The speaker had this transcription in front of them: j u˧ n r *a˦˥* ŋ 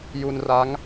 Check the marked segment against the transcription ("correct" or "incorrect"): correct